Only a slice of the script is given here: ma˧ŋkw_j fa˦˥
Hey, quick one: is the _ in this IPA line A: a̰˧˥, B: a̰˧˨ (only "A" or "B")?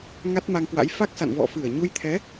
A